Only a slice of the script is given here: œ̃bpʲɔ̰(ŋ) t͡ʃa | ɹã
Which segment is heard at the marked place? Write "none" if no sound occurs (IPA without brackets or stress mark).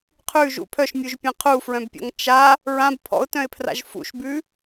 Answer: ŋ